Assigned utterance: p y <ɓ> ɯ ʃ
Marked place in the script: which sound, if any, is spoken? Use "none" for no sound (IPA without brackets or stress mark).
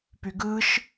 ɡ